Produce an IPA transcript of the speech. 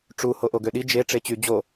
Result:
ʈ͡ʂ u h o ʔ o ɡ ø ɗ i d͡ʒ e ʈ͡ʂ e t͡ɕ y d͡ʑ o

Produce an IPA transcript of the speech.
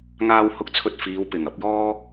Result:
ŋ aː˧ w h ʊ˥ k̚ t͡sʰ ɵ˧ t̚ f iː˨˧ w p ɪ˨˩ ŋ ɐ˨˥ p̚ j ɔː˥

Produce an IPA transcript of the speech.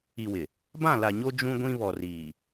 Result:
i˨ w ɪ˨ | b ã˦˨ l a˨ ɲ o˦ d͡ʒ ũ˦ ɡʷ ĩ˦ β ɔ˨ r iː˨

